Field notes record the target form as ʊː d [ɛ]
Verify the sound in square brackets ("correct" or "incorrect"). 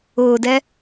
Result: correct